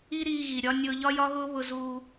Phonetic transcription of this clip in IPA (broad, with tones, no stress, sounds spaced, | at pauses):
i˥ ɾ iː˧ ɣ i˩ ɾʲ ɒ˧ nʲ ʊː˧ ʎ ɒ˥ j ɒ˥ ɣ ʊː˥ β ʊ˧ z uː˧